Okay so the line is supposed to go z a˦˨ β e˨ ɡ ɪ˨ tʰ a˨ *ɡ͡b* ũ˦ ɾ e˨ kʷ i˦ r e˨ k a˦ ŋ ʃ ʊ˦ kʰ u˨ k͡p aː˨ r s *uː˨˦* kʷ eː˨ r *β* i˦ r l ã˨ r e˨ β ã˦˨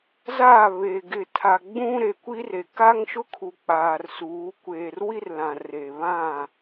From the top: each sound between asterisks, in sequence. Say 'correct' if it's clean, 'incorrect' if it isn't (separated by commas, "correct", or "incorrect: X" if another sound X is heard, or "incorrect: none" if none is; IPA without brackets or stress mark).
correct, correct, incorrect: w